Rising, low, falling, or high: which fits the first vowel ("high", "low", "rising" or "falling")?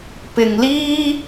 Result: low